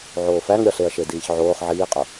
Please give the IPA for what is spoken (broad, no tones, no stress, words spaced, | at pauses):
ʕoːfæŋɾʲɒɬeɐ̯ ʃediːçʕoːχ ʕiːqʼo